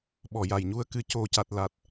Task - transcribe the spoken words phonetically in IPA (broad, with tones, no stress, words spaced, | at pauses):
ɓɔ˨˩ja˨˩jɲu˧ə̯ kɨ˨˩co˨˩ca˨˩t̚ la˨˩t̚